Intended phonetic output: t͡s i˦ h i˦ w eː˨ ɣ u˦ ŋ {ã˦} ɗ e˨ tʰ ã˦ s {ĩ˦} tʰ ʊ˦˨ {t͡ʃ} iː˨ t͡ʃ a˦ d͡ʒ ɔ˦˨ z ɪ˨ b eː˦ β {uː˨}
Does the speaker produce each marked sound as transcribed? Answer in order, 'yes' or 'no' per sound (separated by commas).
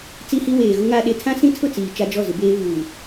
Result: no, yes, no, yes